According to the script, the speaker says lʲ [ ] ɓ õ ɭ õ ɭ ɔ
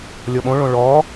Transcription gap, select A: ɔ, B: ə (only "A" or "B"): A